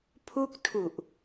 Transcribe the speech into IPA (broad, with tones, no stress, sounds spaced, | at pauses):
pʰ u˥˩ k̚ tʰ u˨˩ ʔ